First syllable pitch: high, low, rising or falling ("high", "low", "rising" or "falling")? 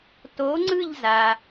rising